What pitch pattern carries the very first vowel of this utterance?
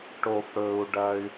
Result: low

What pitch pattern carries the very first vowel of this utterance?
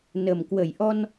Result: low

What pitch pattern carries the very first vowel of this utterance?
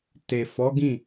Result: low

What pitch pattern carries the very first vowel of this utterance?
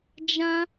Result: high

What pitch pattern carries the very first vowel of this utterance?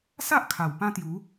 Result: high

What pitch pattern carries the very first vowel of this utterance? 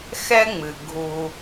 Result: high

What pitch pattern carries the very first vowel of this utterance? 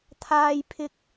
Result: high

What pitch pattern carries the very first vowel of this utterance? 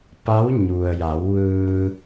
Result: rising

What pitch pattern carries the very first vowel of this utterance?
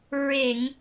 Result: low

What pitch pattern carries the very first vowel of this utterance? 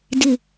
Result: low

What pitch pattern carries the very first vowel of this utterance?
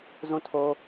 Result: falling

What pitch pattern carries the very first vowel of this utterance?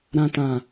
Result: low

